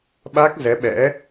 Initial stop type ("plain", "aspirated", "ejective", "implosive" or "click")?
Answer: implosive